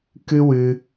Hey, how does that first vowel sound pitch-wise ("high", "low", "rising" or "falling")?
high